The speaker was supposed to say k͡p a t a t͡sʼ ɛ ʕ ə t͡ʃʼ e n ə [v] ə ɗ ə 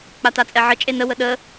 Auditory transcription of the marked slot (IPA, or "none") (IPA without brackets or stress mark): w